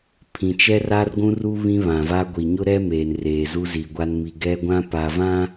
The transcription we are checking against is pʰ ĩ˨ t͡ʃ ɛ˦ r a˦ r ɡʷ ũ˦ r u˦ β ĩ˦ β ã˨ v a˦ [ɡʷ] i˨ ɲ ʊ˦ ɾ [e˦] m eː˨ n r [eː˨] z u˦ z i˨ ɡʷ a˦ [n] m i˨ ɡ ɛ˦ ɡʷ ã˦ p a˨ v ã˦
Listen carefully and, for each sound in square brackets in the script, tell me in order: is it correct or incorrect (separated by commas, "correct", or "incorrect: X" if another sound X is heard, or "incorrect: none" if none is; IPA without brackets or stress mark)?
correct, incorrect: ɛ˦, correct, correct